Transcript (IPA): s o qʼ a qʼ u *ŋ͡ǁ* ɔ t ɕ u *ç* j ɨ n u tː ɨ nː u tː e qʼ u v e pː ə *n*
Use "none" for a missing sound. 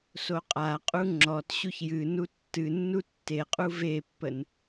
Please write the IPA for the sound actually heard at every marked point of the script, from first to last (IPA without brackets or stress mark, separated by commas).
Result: ŋ͡ǁ, ç, n